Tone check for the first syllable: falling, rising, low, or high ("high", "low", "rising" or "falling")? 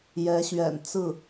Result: rising